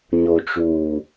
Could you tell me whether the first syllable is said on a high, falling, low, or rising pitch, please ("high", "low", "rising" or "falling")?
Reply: low